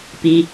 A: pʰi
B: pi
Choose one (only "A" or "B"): B